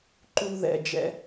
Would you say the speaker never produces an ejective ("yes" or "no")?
yes